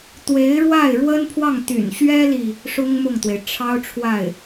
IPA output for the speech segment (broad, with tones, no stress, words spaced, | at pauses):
t̪we˧˥ɪ̯ɻwa˥˩ɪ̯ɻwə˥npʰwɑ˥˩ŋ t̪y̰˨˩nɕɥɛ˥li˨ | ʂʊ˥ŋmʊ˥˩ŋt̪we˩ɪ̯ ʈ͡ʂʰɑ˥ʊ̯ʈ͡ʂʰwa˥˩ɪ̯